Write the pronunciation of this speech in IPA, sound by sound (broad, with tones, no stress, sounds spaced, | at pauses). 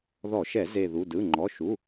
ð ɔ˧˩˧ ʃ ɛ˧˩˧ z e˧˩ ð u˩˧˩ d ɯ˩˧˩ ŋ͡ǃ ɔ˩˧˩ ʃ u˩˧˩